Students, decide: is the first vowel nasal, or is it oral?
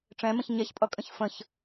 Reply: nasal